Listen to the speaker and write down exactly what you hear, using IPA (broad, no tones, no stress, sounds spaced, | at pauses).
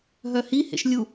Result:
ɦ œ h i h ḛ ʃ lʲ u